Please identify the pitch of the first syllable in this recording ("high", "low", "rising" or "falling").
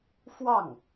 falling